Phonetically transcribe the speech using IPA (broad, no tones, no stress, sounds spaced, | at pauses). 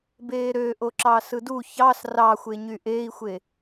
b eː ɾ ø ʔ o ǁ ɑ s ɯ d u ç ɑ s r ɑ xʷ e ɲ y ʔ eː i̯ xʷ e